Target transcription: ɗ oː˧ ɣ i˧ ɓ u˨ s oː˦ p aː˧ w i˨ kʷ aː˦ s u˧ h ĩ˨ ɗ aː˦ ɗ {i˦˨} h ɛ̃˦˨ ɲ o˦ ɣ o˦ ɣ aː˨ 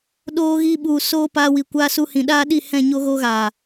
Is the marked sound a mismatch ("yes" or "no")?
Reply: no